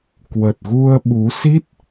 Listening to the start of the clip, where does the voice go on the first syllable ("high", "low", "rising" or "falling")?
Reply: low